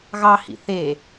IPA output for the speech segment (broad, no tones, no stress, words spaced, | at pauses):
ɣɑhḭ θe